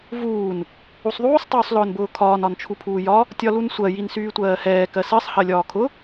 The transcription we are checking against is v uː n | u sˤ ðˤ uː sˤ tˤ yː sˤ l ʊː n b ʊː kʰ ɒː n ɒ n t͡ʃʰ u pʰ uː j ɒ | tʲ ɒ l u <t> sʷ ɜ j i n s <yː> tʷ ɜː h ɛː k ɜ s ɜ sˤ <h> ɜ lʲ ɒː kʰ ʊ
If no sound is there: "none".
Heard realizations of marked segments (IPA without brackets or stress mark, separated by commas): n, yː, h